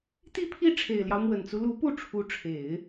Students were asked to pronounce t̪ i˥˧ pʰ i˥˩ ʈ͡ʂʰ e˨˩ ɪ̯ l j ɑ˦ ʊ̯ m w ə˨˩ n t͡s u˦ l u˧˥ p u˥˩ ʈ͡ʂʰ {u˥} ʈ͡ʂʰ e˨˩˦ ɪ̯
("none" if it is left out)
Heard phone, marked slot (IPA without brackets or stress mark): u˧˥